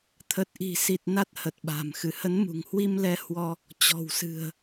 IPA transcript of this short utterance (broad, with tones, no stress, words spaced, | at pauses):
t̪ʰə˨˩t̚ʔi̤˨˩si˨˩t̚ na˦˥t̚hə˨˩t̚ɓa̤˨˩m xɨ˧˩hə˨˦nmṳ˨˩ŋhwi˧m lɛ˧hwɔ˧ | t͡ɕɔ̤˨˩wsɨ̤˨˩ə̯